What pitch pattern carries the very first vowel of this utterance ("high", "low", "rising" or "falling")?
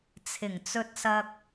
low